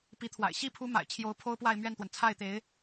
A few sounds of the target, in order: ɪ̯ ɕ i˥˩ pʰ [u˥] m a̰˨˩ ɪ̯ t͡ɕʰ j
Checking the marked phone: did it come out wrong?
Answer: yes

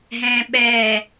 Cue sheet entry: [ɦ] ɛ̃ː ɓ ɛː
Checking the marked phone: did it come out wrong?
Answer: no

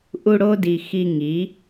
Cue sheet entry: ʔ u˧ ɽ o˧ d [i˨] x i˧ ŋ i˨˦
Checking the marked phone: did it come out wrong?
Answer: no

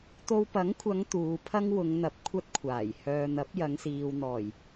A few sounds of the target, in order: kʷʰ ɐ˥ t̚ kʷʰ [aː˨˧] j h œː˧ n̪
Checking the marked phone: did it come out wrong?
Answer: yes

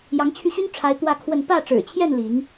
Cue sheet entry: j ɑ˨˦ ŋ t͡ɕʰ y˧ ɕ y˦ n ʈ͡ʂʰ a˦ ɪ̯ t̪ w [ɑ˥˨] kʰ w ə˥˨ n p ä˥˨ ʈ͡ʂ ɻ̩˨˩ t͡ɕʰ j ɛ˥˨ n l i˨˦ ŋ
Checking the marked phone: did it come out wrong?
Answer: yes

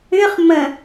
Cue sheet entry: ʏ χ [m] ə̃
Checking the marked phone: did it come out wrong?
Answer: no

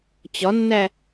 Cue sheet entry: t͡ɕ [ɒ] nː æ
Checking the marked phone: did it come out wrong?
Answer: no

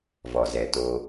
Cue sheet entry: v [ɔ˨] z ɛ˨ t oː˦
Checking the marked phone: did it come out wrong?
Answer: no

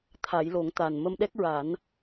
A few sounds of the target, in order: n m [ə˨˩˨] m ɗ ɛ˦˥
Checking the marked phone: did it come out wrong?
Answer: yes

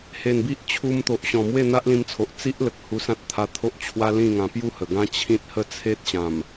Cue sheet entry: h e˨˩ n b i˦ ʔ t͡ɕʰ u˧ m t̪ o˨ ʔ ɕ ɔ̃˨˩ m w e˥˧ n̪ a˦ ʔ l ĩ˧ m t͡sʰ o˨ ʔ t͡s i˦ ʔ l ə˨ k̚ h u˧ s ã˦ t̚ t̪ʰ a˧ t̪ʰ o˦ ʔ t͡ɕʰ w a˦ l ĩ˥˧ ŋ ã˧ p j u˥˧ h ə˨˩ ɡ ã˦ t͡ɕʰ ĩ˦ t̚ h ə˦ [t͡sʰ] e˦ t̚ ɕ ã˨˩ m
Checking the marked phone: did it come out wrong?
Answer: no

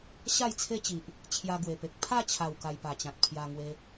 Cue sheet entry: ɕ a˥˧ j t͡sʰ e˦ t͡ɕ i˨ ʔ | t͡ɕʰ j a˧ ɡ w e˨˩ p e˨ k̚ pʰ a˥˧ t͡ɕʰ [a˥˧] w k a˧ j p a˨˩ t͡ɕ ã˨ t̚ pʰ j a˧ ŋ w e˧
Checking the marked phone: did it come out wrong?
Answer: yes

